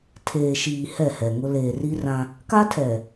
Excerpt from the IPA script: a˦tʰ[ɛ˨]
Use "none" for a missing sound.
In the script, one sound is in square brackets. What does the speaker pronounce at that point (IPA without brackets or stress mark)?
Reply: ɛ˨